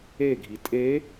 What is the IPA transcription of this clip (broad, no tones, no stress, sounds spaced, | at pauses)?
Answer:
e ɡʱ i tʼ e